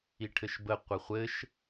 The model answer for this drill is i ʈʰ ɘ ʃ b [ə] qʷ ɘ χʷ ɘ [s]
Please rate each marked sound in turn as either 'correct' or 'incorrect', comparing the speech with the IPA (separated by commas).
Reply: correct, incorrect